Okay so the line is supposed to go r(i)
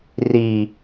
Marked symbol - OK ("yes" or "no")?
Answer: yes